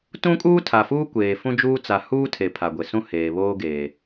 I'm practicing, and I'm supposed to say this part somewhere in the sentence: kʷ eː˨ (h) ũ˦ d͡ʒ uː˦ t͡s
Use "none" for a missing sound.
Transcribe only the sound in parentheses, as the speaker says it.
f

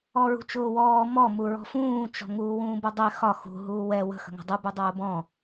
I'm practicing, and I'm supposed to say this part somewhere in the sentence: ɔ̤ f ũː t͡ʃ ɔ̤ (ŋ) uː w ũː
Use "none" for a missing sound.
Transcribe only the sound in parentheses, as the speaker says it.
ŋ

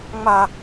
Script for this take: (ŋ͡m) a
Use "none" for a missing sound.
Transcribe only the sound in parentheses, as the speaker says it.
ŋ͡m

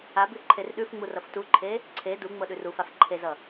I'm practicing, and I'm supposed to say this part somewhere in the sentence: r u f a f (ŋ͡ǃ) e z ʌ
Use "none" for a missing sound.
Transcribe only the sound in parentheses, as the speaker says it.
ǃʰ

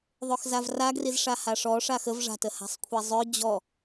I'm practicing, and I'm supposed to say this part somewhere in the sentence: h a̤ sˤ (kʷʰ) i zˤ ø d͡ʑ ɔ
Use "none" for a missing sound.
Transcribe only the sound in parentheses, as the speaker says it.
kʷʰ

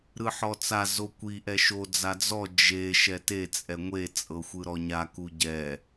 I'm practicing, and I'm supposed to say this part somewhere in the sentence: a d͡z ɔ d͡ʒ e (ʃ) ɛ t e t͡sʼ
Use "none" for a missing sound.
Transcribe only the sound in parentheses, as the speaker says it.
ʃ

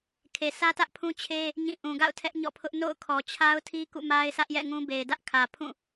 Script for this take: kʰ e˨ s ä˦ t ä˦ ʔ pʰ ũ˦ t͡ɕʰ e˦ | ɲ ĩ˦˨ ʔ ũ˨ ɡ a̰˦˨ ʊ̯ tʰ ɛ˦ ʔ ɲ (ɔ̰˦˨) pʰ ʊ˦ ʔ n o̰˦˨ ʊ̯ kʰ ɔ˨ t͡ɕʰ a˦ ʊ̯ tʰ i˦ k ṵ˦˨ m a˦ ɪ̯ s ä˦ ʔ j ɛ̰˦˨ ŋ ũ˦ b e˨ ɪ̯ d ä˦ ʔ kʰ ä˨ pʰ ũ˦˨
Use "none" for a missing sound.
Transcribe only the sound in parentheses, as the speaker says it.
ɔ̰˦˨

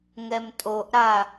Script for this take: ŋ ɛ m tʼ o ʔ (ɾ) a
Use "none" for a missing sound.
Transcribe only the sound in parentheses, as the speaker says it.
ɾ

